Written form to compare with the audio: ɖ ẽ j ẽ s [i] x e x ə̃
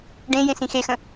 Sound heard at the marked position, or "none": ĩ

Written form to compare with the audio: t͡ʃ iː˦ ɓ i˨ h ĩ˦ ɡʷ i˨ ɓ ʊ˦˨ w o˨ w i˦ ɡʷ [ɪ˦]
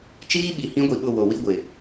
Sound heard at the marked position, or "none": ɪ˨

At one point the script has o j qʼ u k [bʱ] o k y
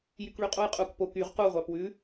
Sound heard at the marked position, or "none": p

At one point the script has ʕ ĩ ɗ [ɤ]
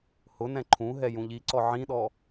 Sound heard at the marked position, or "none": ɔ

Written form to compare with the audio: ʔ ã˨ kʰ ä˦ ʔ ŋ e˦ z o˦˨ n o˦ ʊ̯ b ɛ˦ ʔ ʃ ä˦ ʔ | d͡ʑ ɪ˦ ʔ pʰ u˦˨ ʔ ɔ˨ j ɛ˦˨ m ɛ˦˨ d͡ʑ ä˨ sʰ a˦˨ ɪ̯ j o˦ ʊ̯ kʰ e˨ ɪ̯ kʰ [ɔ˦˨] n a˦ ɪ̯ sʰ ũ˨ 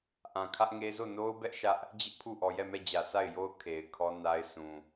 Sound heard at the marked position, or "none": ɔ˦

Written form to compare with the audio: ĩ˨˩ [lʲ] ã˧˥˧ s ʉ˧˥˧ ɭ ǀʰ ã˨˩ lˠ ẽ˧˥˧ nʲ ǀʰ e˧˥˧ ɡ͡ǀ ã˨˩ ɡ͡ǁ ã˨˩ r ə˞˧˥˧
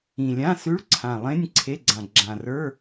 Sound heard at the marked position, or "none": lʲ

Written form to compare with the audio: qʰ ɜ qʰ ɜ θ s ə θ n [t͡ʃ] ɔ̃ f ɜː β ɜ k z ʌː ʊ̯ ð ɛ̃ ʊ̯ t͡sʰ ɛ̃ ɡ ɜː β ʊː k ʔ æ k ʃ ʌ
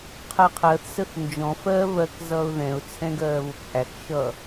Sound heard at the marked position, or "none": d͡ʒ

